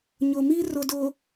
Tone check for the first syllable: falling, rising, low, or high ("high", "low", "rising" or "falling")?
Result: low